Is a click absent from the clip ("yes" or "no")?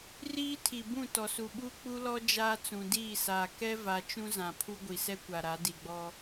yes